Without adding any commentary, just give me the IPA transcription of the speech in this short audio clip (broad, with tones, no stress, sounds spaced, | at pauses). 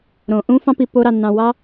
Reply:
ɾ õ˨ ʔ ũ˦ f ɑ̃˦ p i˧ p o˦ ɾ ɑ˧ nː ɑ̃˧ w ɑ˦